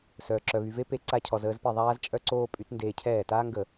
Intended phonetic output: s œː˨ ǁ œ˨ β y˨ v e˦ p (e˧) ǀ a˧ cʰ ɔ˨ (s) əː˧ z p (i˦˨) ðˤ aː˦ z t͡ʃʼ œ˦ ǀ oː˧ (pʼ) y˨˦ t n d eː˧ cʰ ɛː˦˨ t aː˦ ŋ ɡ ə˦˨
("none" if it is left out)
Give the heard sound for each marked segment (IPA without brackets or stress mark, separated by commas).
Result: e˧, z, i˦˨, pʼ